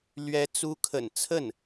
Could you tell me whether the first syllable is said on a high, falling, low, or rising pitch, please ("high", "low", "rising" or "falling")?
rising